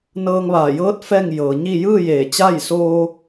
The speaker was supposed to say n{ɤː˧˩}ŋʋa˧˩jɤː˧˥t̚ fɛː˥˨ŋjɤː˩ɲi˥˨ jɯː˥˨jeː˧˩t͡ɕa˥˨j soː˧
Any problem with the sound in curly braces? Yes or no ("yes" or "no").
yes